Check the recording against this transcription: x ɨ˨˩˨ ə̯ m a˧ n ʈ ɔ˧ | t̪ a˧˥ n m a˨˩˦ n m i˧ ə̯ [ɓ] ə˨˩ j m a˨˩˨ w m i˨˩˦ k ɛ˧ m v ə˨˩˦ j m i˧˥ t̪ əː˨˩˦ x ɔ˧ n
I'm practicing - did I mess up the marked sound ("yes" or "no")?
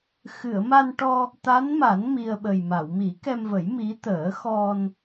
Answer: no